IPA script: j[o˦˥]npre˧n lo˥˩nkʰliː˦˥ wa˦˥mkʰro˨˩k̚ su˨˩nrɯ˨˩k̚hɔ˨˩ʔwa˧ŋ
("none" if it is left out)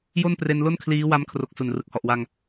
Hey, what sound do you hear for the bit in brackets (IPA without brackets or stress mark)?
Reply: o˥˩